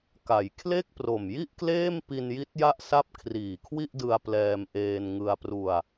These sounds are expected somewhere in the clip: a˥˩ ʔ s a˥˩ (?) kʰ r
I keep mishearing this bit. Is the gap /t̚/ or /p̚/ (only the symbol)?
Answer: p̚